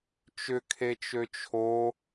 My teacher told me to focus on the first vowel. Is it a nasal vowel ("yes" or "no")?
no